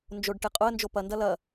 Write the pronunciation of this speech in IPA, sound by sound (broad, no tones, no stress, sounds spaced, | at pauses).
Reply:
n d͡ʒ o ɖ ʈ e qʼ ʊ ə̯ n d͡ʒ o p ɐ n d ɐ l ɐ